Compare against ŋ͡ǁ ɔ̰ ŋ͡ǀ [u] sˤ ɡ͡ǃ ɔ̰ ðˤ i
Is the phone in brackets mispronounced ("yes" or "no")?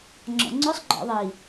yes